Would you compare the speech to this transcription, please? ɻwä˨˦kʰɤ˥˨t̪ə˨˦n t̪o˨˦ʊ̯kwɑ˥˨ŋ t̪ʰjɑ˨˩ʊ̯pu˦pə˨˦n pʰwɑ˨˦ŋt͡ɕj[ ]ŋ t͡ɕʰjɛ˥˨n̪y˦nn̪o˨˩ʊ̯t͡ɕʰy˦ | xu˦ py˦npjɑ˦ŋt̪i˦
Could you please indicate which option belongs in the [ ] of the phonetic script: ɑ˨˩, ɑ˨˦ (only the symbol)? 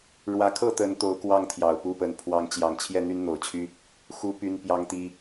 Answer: ɑ˨˩